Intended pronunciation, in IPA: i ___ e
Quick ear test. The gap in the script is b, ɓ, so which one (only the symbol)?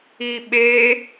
ɓ